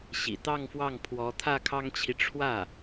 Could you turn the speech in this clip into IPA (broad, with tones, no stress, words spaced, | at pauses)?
ɕḭ˨˩t̪ɑ˥˧ŋfwɑ˥˩ŋ pʰwɔ˧˥t̪ʰä˥˩kʰɑ˥ŋt͡ɕʰi˨ ʈ͡ʂʰwä˥˩